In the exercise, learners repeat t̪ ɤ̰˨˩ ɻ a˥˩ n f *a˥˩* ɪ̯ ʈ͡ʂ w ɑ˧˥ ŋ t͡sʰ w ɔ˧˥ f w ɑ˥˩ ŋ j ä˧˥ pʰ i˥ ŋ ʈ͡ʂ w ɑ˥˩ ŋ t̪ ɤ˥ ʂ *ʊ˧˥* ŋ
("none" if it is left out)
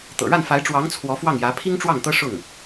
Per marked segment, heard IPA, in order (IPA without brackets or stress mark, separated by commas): a˧˥, ʊ˥˩